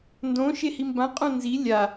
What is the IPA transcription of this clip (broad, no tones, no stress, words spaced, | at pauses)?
ndõ ʃehimbã qʼõnzi lʲa